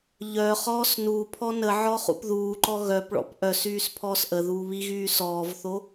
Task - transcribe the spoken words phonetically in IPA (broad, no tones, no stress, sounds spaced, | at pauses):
ʎ œ χ ɔː s n u pʰ ɔ n ə ʕ ɔ χ ṵ p ð uː ǃ ɔ ɣ œ p ɭ ɔ̰ p ʔ œ s yː s pʰ ɔː s ʔ ə ð uː β i ɣ yː s ɔː v θ o